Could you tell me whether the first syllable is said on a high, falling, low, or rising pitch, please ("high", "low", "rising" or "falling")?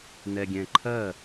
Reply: low